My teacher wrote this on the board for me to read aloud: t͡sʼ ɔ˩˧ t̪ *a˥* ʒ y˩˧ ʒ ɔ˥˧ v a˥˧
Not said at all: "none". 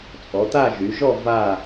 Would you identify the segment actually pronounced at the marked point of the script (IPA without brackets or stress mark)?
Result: a˥˧